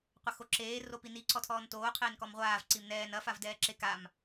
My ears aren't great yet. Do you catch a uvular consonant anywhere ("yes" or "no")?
yes